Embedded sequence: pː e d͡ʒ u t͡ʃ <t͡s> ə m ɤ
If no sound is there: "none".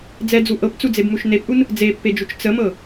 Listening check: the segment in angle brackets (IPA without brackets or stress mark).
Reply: t͡s